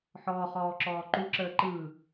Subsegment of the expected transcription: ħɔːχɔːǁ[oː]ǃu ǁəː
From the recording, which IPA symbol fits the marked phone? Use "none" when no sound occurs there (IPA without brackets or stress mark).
ɔː